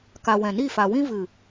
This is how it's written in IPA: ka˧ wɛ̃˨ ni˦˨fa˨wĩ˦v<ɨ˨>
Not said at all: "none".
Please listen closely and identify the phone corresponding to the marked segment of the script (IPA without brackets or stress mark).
ɨ˨